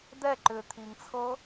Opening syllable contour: falling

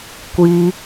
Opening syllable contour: high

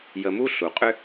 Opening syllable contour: low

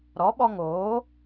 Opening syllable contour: rising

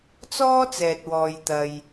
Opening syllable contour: high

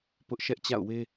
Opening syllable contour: high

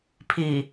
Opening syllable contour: low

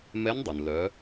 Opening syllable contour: rising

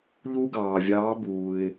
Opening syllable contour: high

